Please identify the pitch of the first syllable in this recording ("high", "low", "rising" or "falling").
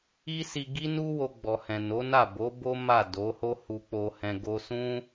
high